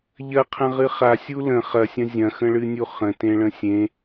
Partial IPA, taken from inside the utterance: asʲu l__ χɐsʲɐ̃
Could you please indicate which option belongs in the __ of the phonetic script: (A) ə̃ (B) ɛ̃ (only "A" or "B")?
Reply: A